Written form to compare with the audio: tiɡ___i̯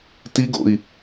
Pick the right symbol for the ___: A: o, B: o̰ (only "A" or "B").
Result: B